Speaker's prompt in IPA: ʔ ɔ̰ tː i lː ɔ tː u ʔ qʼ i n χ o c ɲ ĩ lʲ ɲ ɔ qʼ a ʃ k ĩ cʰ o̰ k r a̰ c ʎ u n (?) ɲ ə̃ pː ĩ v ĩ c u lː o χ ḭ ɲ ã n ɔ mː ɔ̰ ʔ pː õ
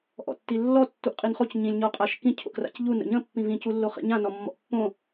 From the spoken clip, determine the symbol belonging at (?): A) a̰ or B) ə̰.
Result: B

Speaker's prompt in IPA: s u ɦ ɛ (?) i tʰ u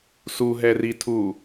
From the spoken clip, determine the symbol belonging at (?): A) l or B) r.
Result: B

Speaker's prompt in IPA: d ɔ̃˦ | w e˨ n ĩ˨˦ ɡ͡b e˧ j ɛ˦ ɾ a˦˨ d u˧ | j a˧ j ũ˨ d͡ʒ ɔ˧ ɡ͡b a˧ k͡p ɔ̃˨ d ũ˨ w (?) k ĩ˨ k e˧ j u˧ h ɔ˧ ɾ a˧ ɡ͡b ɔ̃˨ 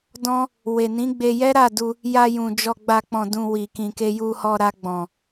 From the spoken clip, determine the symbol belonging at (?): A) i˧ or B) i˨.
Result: B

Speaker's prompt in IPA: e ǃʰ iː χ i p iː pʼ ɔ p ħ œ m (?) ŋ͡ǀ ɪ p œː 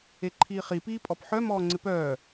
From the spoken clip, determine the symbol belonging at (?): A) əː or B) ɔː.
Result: B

